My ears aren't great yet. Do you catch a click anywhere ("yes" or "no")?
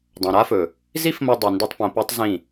no